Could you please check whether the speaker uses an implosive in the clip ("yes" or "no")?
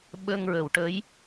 yes